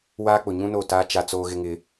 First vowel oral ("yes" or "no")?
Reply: yes